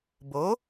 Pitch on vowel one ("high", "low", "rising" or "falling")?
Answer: rising